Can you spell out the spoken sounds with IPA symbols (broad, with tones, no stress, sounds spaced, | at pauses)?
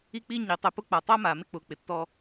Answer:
i˧ k͡p i˧ ɲ i˨ tˤ ɪ˧ p ʊ˦ k͡p a˨ tˤ a˦ m aː˨ m ɪ˦ k͡p ʊː˨ k͡p ɪ˨ tː ɔ˧